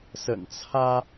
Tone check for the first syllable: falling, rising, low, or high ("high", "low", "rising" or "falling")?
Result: low